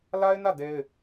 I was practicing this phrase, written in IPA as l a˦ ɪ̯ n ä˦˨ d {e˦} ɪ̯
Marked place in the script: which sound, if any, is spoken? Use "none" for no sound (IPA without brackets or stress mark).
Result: e˦